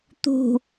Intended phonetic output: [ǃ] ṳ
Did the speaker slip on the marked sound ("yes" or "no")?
yes